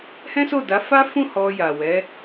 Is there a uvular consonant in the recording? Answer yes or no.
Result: no